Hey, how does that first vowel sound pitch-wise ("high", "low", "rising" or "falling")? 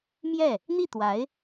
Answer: falling